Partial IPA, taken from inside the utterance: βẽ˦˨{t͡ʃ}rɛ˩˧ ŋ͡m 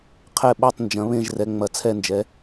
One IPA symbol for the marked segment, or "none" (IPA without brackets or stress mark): ʒ